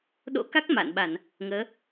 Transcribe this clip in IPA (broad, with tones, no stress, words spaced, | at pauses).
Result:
ɗo̰˧˥ka˦˥k̚ ma̰˧˨nɓa˧˩˨n | ŋəː˨˦